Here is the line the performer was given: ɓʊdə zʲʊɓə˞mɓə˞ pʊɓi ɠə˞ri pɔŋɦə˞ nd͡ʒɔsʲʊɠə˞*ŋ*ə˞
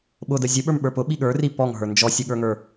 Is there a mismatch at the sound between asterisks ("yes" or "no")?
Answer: no